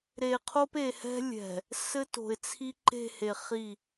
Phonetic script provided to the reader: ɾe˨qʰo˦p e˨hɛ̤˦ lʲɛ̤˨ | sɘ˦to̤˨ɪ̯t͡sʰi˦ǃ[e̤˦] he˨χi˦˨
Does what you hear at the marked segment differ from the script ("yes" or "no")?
yes